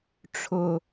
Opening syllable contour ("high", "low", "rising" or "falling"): low